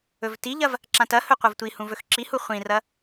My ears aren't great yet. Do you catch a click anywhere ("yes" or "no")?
yes